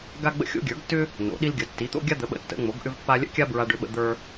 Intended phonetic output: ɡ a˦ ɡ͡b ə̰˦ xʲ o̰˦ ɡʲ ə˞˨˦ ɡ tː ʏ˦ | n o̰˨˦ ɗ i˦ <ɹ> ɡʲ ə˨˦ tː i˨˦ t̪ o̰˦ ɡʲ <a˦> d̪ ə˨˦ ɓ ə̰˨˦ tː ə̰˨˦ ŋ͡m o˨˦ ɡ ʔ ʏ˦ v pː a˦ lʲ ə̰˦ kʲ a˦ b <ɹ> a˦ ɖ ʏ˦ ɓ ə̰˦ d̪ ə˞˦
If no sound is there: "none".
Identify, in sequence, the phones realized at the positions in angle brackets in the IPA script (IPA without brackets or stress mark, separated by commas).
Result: l, a˦, ɹ